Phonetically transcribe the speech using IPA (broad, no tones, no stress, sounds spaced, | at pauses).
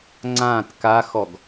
ŋ͡ǀ ã t k a x ɔ ɡ